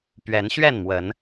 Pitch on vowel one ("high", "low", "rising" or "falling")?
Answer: rising